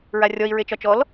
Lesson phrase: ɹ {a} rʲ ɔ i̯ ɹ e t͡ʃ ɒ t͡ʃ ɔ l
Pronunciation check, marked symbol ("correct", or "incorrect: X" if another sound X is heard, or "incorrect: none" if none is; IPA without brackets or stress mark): correct